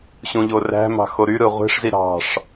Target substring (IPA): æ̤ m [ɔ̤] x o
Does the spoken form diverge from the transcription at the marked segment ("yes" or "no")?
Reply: yes